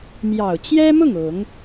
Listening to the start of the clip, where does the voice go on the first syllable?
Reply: low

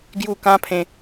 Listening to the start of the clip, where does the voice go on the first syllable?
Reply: falling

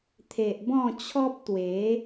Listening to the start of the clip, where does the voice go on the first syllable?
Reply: low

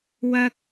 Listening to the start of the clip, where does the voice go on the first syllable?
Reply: high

